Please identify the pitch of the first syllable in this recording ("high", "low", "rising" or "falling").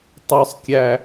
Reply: high